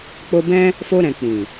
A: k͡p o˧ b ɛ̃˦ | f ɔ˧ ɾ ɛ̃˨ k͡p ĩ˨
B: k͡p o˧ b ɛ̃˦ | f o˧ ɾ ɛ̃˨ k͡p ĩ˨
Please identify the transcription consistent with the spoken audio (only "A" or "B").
B